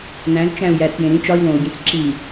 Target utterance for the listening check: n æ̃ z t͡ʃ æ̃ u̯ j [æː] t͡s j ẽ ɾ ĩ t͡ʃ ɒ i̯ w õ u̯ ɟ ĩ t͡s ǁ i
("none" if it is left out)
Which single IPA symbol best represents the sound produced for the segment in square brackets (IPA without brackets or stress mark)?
æ